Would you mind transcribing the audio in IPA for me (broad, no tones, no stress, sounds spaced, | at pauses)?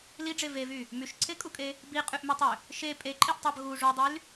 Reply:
l i ɖ͡ʐ e v e v y | m y ʃ ǀʰ e kʼ u kʼ e | b i qʼ y ʔ m e tˤ ø | ʃ e pʼ e ǃʼ i ʔ tˤ ɑ b ɣ u ʐ u dˤ y l